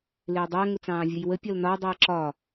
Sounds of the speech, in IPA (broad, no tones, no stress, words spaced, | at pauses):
lɪːdˤæ ŋʊt͡sɑ̃ːvʲʌjwə pʲɒlnɒ dˤɛə̯ǁɒ